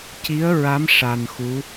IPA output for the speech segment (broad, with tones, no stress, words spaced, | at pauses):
ci˧˥ə̯ɹa˧˥m ʂa˧nxu˧˥